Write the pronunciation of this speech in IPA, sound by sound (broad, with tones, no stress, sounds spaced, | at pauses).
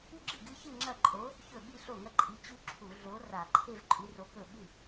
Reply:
ʉ˥˧ ɡ͡ǁ ɨ˥˩ ɡ ɨ˦˥ ç ɨ˥˧ ŋ͡ǁ ɐ˥˩ ǃʼ o˨˥ | ç ɵ˥˩ ɓ i˥˧ ɬ o˥˩ ŋ ɐ˥˧ ǃʼ i˨˥ t͡ɕ ʉ˦˥ ǁʰ u˧˩˧ ɮ o˨˥ r a˧˩˧ ǃʰ e˥˧ v ǃʼ ʉ˨˥ r o˨˥ k ɵ˥˩ ɓ ʉ˥˩